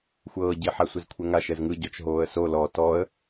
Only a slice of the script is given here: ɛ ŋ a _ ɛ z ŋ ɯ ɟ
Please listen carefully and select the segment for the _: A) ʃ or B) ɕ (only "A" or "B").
A